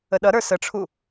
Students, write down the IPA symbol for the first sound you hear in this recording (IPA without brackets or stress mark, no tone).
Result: ə